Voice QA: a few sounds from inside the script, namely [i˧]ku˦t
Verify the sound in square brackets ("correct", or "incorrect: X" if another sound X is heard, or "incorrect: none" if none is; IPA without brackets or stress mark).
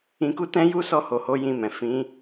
incorrect: ĩ˧